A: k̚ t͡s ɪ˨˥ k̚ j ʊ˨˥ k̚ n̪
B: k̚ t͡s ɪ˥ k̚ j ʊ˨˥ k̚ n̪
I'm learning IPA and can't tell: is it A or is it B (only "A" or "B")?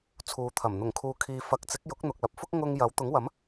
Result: A